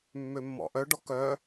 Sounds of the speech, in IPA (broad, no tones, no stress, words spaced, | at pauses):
mːømːɔ̰ʔœɖɔ kœ